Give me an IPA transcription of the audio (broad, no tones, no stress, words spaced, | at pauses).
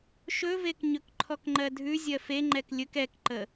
ʃɵvek ɲɵkǃʰɔkŋ͡ǃɜdʱʉ zʲɜfeŋ͡ǃɛk lʲɵk ɛkǃə